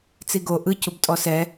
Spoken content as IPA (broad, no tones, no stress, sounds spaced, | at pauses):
t͡s i ɡ o ʔ ɯ c u b tʼ ɔ s ɛ